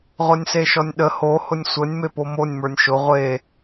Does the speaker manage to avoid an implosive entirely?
no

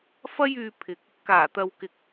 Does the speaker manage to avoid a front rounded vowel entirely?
no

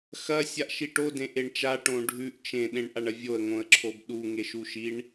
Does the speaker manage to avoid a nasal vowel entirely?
no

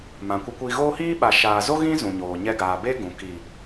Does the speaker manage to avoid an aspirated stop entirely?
yes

